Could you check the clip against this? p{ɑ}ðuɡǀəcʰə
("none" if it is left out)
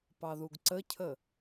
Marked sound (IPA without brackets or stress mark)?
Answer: ɑ